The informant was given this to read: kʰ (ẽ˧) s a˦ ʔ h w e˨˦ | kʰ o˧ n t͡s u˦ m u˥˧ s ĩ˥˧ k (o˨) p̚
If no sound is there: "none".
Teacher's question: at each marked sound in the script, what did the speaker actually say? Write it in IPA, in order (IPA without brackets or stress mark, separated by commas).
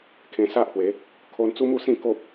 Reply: ẽ˧, o˦